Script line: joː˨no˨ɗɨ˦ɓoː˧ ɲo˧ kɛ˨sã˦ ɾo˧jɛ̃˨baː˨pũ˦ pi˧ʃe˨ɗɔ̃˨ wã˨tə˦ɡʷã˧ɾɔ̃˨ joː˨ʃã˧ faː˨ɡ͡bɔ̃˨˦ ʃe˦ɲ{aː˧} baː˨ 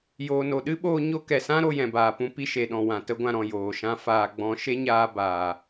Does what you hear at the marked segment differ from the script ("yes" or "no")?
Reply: no